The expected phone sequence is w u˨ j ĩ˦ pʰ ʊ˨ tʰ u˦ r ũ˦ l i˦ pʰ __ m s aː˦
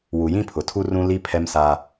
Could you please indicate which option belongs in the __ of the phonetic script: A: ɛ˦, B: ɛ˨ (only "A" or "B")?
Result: A